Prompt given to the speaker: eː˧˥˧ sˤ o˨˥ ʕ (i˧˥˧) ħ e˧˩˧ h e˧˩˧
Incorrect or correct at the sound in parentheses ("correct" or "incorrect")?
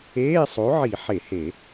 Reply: incorrect